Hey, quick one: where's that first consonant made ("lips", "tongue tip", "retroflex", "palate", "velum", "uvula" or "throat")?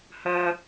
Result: throat